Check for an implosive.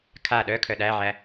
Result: present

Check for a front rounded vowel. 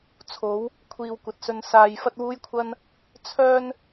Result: present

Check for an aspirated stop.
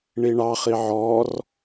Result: absent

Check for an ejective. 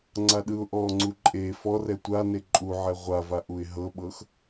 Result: present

